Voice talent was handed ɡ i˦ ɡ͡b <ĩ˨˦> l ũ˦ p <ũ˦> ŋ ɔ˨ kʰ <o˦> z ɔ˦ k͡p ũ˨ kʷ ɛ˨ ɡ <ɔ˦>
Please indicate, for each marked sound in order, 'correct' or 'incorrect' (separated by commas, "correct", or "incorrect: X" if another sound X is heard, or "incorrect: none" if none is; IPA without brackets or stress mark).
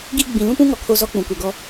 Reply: incorrect: ĩ˨, correct, correct, correct